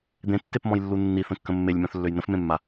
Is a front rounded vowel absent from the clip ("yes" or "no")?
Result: no